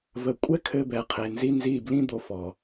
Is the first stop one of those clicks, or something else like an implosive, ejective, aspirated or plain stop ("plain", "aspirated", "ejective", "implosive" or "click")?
ejective